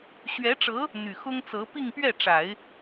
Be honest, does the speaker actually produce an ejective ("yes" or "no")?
no